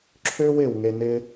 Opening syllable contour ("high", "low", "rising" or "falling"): high